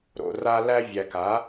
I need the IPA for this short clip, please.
ɾo̰˨ra˧ læ˧vʲæ˨ka˨˦

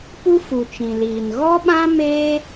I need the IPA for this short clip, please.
pu˦fu˨t͡ʃĩ˨liː˨n ɣɔ˦ɓã˦ meː˦

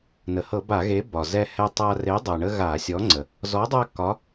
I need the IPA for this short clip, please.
nə˩hɤ˧˩˧ba˧˩˧ɣe˨˥ bɒ˩ zɛ˦hɛ˦tˤa˦ re˨˥dˤɤ˩ɳə˦ ɣa˧˩˧sʲɔ˨˥ŋ͡ǀə˩ | zɔ˨˥dˤa˦ kɒ˨˥

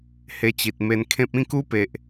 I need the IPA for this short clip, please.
he˧t͡ɕi˨t̚me˧nkʰẽ˦p̚ ĩ˥˧ku˦pe˨ʔ

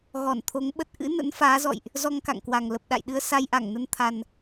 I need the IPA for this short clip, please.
ɣɔ˧˩nt̪ʰo˨˦ŋɓə˦˥t̚ ʔɨ̰˧˥ nə̰˧˥nfaː˨˦zɔ̰˧˨jʔ | zɔ˧ŋka̰˧˨ŋkwa˨˩ŋ lə˨˩p̚ɗa̰˧˨jɗɨ˧ə̯ sa˧jʔa˧˩ŋnə˧n t̪ʰa˨˩n

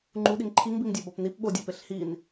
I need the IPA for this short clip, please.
ŋ͡ǃuɗiŋ ǃʰiŋbiŋdʲæ bɒpnip ɓodʲæpeɬ hin

